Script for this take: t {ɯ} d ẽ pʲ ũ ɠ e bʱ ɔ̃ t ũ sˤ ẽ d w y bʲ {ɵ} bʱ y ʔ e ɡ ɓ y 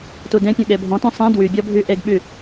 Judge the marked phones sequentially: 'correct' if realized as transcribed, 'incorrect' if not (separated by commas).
incorrect, incorrect